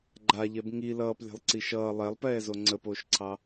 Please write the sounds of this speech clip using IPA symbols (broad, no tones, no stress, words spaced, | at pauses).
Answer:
ɡ͡ǃaʎɛb ŋi lʌːplʲɛ̤lˠǀi ʃʌː lˠɛlˠpɛːzo ŋ͡ǀəpoːʃǀʰɑ